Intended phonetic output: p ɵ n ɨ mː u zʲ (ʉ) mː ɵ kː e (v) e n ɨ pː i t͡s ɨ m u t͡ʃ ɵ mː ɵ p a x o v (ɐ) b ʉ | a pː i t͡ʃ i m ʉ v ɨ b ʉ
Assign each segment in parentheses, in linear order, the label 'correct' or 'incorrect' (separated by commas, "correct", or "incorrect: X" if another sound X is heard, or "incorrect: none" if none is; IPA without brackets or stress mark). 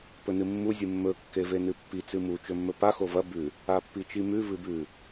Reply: incorrect: ɨ, correct, correct